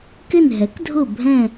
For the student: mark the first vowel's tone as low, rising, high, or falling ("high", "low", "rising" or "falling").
falling